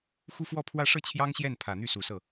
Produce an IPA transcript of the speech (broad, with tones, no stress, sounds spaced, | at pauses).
x u˥˧ f w ɔ˥˧ pʰ w ä˥˧ ʂ ɤ˥˩ t͡ɕʰ j ɑ˥ ŋ ɕ j ɛ˥˩ n pʰ ä˨˩ n̪ y˥˩ s u˨˩ s ɤ˥˩